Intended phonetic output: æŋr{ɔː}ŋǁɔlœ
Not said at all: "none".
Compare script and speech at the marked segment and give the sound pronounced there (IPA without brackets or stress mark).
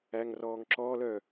ɔː